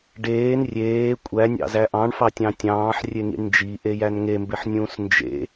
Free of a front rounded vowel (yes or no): yes